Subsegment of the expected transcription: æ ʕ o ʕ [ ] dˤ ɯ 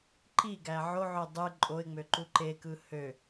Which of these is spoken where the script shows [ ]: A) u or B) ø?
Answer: B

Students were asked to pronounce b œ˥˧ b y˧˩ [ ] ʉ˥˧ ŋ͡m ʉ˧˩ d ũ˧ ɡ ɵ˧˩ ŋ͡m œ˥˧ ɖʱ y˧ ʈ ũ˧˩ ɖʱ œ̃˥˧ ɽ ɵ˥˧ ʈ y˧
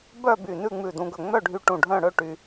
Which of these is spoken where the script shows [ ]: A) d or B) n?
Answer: B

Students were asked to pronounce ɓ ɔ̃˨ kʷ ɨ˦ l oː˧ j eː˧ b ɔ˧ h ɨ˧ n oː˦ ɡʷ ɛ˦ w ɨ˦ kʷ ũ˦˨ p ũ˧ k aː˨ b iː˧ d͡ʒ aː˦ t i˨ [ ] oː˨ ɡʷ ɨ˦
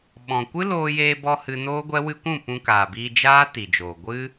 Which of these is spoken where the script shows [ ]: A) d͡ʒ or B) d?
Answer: A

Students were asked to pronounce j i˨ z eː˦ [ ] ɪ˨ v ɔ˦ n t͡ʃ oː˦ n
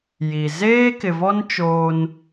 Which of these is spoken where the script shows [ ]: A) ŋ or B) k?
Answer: B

